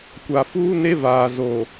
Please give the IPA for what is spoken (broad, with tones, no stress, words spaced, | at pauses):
kʷa˨fuː˦ne˦ vaː˨ zo˨